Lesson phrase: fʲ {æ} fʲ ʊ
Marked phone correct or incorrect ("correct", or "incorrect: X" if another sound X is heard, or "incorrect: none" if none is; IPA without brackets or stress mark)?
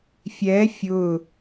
incorrect: ɛ